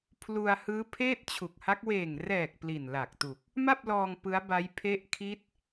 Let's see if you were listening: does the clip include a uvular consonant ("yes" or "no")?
no